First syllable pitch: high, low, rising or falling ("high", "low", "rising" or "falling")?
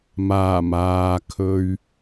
low